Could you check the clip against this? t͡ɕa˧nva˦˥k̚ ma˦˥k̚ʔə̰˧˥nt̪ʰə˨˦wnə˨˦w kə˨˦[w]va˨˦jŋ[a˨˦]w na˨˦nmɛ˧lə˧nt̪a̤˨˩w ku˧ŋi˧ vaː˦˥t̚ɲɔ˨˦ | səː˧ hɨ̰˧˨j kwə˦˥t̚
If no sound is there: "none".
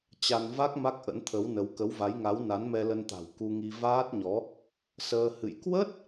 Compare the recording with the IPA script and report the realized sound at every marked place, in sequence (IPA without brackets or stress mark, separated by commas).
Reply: w, a˨˦